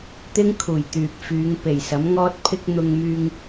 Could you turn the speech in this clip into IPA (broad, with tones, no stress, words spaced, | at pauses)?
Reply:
t̪ɪ˥ŋkʰuː˨˩j t̪yː˨p̚fyː˨˧ŋ pe˨˩jsɐ˨˥mŋɔː˥t̚pʰɪ˥k̚ n̪ʊ˧ŋmyː˧ŋ